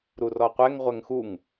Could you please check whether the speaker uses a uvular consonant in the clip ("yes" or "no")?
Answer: yes